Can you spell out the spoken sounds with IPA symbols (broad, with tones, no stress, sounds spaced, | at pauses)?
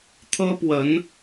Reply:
t̪ʰ ɤ˥ p w ə˧˥ n